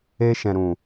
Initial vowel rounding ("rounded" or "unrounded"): unrounded